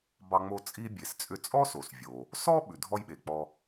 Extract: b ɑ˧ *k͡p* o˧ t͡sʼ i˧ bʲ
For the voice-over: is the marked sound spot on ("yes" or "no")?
no